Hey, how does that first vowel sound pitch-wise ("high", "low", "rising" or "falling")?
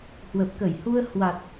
low